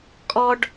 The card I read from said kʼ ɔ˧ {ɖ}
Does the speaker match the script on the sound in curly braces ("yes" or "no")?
yes